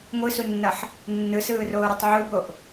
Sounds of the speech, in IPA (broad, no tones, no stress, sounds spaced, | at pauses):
ŋʷ ɯ s u nː ʌ ħ | nː ɯ s ɯː r oː ɾ ɯ tˤ ʕ u b o ʔ